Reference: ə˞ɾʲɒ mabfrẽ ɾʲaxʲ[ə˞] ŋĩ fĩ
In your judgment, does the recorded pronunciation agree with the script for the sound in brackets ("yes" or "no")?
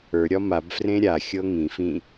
no